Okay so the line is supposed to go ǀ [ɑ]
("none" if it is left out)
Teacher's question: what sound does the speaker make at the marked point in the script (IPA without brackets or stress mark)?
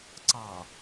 ɑ